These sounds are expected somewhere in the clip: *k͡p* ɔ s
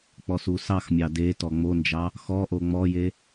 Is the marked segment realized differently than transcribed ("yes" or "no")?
no